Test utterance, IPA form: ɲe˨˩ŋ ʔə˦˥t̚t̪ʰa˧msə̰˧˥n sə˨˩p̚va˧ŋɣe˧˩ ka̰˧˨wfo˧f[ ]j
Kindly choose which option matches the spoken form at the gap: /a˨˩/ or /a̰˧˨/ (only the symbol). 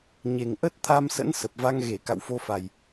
a˨˩